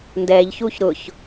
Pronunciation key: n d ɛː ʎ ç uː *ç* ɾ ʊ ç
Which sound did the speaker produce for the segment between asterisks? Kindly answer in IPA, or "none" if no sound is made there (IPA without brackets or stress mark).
ç